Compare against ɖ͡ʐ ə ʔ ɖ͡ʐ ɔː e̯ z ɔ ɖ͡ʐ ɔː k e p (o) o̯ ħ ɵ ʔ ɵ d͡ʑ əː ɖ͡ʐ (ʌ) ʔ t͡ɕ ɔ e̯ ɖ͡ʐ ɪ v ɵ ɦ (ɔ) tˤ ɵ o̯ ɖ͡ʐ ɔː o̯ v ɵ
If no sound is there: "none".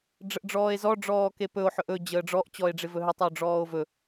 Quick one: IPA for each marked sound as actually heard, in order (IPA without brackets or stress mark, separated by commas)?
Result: ɵ, ɔ, ɵ